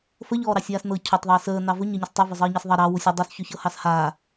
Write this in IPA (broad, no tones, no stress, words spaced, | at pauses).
fəʎɔːɾɑsʲaːs nɤ cʰɵtˤðˤəː səː nɑvɵ ɲəɲəs tˤɵ vɵzˤəːɲɤsðˤɑ ɾɑ wusʲə dˤusçɵçɤ hɑshaː